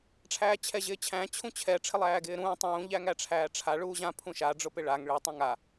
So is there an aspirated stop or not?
yes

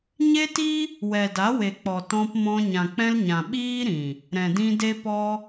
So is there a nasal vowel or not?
yes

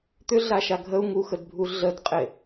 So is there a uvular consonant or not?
yes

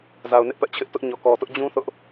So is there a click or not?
no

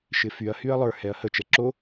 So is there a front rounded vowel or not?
yes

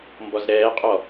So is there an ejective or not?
yes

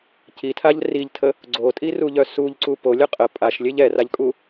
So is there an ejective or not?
yes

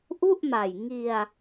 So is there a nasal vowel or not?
no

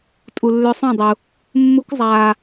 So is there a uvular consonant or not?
no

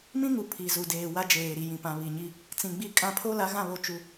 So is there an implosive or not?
no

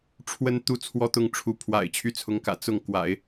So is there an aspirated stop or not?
yes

